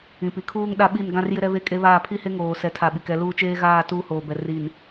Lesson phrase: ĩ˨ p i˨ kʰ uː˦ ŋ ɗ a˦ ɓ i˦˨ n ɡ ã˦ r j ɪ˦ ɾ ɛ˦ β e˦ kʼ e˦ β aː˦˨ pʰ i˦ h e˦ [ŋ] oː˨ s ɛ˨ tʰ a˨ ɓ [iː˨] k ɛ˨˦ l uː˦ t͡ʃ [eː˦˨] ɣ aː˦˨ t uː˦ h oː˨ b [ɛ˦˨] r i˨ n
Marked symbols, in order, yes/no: yes, no, no, no

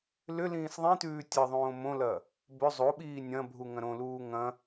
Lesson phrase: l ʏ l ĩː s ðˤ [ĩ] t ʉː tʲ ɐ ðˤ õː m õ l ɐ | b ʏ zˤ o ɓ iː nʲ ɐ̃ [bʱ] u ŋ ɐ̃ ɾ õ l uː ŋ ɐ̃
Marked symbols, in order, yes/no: yes, yes

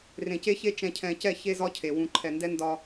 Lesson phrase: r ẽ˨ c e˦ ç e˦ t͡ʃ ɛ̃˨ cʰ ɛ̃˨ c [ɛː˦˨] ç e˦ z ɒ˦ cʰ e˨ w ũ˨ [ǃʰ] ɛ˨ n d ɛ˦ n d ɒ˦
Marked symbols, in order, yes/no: no, yes

